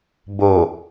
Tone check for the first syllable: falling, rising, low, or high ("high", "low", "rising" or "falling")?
low